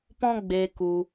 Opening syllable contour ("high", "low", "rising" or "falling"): high